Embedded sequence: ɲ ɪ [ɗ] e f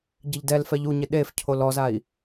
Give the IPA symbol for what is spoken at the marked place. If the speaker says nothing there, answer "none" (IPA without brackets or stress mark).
ɗ